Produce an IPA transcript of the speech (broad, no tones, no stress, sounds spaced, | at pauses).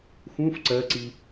x ũ f ǀ ɜ ǀ i